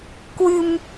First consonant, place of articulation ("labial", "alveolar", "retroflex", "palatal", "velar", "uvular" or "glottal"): velar